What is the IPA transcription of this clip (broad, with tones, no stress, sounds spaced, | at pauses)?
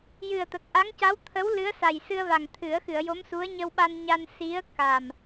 j ɨ˨˩ ə̯ t̪ ə˨˩ k̚ ʔ a˧˥ ŋ c a˧˥ w t̪ʰ ə˧˥ w l ɨ˧˥ ə̯ s a˨˩ j s ɨ˧ ə̯ v a˨˩ ŋ t̪ʰ ɨ˨˩˦ ə̯ x ɨ˨˩˨ ə̯ j o˧˥ m s u˧˥ ə̯ ɲ ə˧ w ɓ a˧ n ɲ a˧ n s i˧˥ ə̯ k a˨˩ m